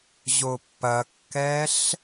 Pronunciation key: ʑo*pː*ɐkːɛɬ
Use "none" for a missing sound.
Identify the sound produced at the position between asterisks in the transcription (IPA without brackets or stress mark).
pː